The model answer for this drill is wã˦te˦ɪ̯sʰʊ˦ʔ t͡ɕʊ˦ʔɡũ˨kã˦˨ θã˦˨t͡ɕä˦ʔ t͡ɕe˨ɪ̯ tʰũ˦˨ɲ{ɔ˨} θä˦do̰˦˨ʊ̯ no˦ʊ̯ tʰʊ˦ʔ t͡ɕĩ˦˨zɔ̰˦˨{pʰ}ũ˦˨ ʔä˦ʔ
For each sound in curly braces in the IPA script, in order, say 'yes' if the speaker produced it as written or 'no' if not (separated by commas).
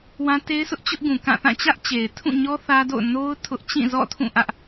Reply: no, no